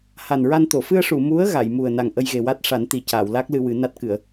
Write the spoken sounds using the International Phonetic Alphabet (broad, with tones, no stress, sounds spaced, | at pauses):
h a˨˩ n ɹ a˧ n t̪ o˨˩˨ f ɨ˧ ə̯ ʂ u˨˩˨ m u˧˥ ə̯ ɣ a˨˩˨ j m u˨˩ ə̯ n a˨˩ ŋ ʔ ə˧ j ɣ e˨˩ w a˦˥ t̚ ʂ a˨˩˦ n t̪ i˨˩ c aː˨˩˨ w l a˦˥ k̚ l ɨ˧ w ɨ˨˩˦ n a˦˥ t̚ k ɨ˨˩˨ ə̯